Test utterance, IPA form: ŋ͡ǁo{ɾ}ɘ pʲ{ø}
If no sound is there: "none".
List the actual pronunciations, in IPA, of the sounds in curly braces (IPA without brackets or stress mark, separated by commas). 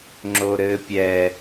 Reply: ɾ, ɛ